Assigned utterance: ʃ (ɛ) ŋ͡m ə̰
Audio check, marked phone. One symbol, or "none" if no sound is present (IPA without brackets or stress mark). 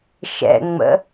ɛ̰